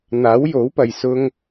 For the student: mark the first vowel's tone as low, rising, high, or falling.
rising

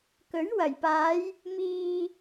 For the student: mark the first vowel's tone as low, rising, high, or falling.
rising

